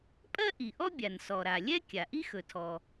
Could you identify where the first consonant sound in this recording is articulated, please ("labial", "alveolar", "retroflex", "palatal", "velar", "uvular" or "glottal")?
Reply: labial